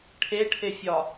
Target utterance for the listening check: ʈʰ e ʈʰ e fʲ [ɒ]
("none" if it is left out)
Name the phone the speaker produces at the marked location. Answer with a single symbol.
ɒ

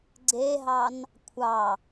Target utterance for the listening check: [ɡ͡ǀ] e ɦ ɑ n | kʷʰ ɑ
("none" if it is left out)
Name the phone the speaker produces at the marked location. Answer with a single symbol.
ɡ͡ǀ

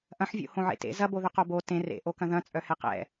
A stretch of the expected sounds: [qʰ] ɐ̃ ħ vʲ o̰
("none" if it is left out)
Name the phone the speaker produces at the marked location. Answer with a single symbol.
ʔ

